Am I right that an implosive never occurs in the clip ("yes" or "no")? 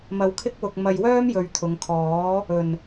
yes